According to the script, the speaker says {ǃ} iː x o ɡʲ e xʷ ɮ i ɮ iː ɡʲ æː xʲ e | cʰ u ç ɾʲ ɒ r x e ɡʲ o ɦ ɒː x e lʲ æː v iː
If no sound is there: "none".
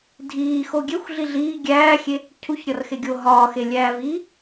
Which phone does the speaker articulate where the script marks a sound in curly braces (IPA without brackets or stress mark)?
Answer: dʱ